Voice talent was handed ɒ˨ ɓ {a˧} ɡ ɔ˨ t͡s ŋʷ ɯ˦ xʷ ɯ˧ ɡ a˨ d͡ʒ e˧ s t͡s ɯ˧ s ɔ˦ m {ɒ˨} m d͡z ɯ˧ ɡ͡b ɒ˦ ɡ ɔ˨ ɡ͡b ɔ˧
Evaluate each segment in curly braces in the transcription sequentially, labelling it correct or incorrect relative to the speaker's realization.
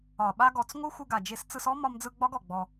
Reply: correct, incorrect

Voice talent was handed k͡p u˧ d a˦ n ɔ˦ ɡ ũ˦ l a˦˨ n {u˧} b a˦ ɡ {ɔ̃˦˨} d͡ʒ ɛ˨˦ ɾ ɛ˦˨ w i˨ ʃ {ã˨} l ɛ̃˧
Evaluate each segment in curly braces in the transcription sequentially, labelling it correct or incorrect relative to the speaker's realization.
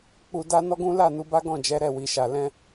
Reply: correct, correct, incorrect

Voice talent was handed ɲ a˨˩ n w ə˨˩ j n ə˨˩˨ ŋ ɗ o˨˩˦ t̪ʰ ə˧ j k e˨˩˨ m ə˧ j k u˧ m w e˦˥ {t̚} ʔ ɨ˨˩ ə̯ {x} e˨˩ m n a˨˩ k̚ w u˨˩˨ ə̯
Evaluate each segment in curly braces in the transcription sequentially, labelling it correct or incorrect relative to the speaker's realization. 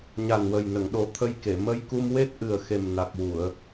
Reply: correct, correct

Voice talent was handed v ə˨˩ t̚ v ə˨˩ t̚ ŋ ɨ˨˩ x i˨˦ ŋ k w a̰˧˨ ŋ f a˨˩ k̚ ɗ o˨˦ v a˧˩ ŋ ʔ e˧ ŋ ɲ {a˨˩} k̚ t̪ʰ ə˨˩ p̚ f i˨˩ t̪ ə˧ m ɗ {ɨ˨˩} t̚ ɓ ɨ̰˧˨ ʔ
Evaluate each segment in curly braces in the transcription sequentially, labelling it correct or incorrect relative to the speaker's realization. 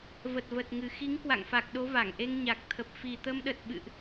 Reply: correct, incorrect

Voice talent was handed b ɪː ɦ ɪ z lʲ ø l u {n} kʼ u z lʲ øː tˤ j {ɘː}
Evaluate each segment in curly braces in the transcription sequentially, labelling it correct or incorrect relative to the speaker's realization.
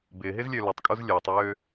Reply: incorrect, incorrect

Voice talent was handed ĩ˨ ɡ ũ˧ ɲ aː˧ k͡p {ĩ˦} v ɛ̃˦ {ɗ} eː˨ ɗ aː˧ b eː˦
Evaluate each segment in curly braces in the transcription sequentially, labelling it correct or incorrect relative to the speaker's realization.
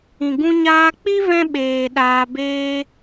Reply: incorrect, incorrect

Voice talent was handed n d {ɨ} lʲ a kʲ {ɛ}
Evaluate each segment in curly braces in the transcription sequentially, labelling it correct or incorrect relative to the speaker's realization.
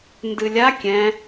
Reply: correct, incorrect

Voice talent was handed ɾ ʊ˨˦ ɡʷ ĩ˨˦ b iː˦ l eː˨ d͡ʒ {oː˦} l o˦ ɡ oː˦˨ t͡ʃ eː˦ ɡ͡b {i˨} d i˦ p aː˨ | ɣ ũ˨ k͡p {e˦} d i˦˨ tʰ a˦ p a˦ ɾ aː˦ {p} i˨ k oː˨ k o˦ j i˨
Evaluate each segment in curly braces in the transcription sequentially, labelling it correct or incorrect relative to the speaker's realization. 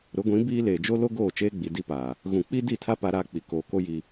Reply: incorrect, correct, incorrect, incorrect

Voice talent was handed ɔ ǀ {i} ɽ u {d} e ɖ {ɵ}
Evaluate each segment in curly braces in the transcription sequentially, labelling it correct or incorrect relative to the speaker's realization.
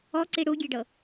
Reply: correct, incorrect, incorrect

